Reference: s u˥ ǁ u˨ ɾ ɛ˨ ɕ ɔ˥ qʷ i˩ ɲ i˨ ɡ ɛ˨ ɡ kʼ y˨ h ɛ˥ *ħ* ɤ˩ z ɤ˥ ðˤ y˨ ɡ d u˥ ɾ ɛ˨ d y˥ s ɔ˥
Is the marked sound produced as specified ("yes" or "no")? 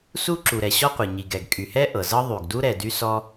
no